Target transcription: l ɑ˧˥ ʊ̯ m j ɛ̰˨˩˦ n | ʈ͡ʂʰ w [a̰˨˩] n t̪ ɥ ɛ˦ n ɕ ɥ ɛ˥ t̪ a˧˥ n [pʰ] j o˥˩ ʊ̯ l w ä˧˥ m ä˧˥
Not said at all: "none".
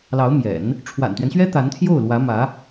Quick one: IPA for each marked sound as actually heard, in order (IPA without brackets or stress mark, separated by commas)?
a̰˨˩, t̪ʰ